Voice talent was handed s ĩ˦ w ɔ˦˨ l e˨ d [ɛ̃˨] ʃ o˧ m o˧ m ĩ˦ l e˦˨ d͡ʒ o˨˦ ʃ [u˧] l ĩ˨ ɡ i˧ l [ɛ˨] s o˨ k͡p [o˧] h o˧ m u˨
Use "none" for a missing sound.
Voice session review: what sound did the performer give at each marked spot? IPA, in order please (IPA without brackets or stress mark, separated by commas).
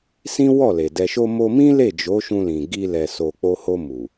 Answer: ɛ˨, ũ˧, ɛ˨, o˧